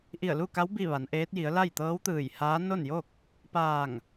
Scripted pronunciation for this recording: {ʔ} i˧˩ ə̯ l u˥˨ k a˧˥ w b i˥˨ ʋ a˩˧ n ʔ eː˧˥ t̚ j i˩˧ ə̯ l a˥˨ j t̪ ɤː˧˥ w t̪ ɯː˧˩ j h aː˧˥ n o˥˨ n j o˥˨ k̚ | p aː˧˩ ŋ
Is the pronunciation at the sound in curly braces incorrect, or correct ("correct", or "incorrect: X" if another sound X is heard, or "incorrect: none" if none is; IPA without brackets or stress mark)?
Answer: correct